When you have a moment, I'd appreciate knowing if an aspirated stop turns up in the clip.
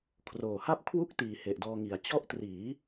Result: yes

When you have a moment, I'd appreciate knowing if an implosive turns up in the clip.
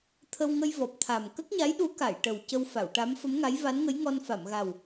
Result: yes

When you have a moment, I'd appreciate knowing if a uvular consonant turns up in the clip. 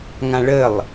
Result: no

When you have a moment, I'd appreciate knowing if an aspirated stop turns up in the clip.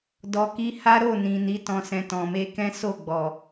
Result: no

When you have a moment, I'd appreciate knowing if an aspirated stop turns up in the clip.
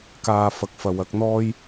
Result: no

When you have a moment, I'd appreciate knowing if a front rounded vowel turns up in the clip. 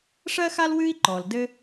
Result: no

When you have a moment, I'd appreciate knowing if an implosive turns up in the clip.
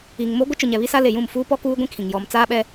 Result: yes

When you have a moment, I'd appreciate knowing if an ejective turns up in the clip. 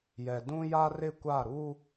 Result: no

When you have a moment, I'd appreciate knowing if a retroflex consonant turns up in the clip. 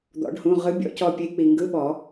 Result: yes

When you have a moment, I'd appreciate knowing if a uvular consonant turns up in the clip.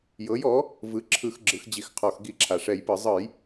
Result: yes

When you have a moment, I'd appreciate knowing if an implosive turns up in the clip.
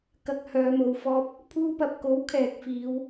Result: no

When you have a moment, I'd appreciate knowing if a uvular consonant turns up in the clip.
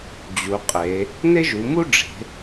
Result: yes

